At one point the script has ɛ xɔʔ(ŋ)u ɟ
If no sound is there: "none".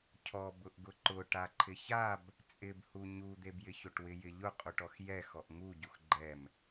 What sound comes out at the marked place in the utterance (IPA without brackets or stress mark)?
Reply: ŋ